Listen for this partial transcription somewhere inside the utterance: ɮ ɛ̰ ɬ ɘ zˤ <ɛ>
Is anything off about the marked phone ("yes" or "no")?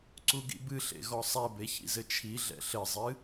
yes